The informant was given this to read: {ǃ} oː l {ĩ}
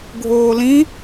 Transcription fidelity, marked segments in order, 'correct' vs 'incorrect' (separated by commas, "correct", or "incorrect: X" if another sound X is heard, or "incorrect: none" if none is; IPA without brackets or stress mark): incorrect: ɡʱ, correct